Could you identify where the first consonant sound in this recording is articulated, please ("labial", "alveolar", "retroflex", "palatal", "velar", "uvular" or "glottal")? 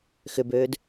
velar